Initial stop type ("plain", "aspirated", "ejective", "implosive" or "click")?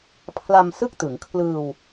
aspirated